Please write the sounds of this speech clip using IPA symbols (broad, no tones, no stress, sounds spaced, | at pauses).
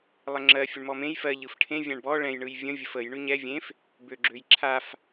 lˠ ə ŋ͡ǁ ɜ fʲ ə ɳ m ɔ m ẽ j f ɜ ʎ ɯ f ʈʰ ẽ vʲ ã ɳ b ɔ ɭ ɛ̃ j ɳ ɯ j vʲ ə̃ vʲ ə f ə j ɳ ʉ ɲ ɛ vʲ ẽ f | b ø ɡ͡ǁ ø j ǁʰ a f